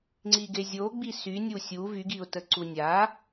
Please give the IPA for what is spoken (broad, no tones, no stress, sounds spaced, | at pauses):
ŋ͡ǀ i ɡ e zʲ o ɡ͡b i s y nʲ u sʲ u v y ɡ i ʊ̯ t ə ǀ u nʲ a